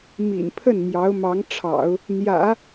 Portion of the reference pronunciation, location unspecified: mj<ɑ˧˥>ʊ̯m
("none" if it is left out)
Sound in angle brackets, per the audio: ɑ˧˥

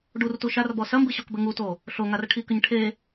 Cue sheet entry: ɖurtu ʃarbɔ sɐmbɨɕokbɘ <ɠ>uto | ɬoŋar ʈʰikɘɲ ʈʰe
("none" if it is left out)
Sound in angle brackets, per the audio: ŋ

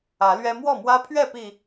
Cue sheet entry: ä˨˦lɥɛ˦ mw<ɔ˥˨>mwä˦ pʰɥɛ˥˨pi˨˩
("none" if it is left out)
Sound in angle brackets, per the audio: ɔ˥˨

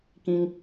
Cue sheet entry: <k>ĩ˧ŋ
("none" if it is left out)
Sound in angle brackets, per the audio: k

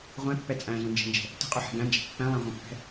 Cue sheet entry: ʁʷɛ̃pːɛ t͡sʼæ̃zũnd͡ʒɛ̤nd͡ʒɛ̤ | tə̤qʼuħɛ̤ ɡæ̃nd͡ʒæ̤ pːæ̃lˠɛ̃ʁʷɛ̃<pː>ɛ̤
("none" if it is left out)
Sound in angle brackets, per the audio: pː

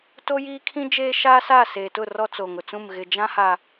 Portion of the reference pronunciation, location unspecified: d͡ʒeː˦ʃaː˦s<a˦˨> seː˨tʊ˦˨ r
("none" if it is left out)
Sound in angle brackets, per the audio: a˦˨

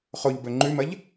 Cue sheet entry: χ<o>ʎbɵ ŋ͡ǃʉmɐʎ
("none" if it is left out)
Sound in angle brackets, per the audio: o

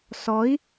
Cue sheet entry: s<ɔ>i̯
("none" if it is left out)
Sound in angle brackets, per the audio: ɔ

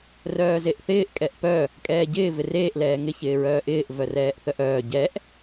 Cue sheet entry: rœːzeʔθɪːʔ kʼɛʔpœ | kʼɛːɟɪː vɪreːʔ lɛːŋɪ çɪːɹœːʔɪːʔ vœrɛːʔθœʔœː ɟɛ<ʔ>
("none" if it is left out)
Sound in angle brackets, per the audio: ʔ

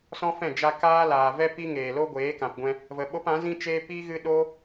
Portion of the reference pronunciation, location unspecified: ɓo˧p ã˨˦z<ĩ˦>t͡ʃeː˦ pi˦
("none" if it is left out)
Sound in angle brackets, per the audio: ĩ˦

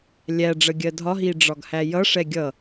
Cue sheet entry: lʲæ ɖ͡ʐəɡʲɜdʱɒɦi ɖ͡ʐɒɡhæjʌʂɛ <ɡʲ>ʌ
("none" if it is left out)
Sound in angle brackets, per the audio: ɡʲ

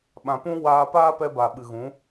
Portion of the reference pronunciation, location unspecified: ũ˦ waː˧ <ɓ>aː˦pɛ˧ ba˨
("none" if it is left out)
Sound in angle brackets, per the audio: p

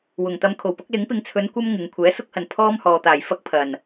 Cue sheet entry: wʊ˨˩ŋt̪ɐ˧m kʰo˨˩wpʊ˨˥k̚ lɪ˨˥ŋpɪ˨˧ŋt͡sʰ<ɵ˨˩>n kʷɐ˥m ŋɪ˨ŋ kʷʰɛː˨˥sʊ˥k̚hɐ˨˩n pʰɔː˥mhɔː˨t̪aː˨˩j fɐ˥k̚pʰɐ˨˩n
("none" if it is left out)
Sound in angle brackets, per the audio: ɵ˨˧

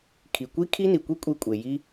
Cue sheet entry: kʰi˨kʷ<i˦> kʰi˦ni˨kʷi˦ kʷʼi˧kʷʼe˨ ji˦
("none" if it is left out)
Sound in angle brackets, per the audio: i˦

